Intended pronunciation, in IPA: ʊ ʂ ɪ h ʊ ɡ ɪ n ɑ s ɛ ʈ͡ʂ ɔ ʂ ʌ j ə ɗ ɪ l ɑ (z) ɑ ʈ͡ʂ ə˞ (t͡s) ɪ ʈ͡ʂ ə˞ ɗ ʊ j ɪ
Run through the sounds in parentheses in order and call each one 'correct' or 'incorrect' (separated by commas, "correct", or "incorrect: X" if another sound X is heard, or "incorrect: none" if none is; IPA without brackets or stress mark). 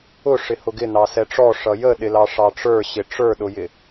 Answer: incorrect: ʂ, incorrect: ɕ